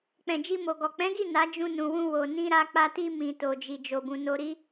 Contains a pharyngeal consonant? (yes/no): no